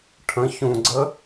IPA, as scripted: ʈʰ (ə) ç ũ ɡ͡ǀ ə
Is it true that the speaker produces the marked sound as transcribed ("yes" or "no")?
no